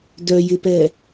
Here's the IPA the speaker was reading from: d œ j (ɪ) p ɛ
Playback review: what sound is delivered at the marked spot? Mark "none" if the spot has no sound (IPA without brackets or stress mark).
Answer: ɪ